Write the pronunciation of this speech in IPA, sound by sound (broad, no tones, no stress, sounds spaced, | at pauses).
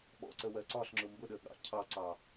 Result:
ɓ ɔ̰ ǀ ə w ɜ ǀ ɒ ɬ ŋ͡ǁ ʊ m b ʊ ɗ ə ɠ ɑ̰ cʰ ɑ ǀ ɑ